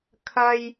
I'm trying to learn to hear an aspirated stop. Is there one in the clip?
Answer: yes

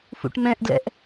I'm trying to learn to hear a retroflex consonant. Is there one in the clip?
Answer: yes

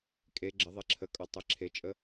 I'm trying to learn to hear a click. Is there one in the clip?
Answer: yes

